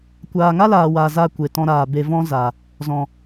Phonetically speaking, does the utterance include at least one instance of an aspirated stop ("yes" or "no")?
no